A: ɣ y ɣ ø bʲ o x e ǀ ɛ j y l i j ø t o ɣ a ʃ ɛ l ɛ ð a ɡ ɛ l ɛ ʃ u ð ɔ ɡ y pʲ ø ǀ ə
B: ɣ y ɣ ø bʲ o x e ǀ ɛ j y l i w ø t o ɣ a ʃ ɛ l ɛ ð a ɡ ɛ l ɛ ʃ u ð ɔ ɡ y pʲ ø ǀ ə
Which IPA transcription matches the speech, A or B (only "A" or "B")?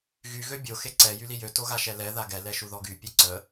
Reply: A